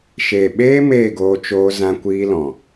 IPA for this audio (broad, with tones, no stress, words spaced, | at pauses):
ʃeː˨ɓeː˦ meː˦˨ɡoː˧t͡ʃoː˧ zã˧kʷiː˧lɔ̃˨